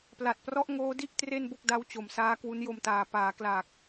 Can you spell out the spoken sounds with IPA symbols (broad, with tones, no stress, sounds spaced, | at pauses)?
p l a˨˩ t̚ p r ɔ˦˥ ʔ ŋ oː˦˥ d i˥˩ ʔ t r e˥˩ n b o˥˩ k̚ d a˦˥ w t͡ɕ o˨˩ m s aː˦˥ k w u˦˥ n j o˧ m t aː˨˩ p aː˩˦ k l aː˨˩ k̚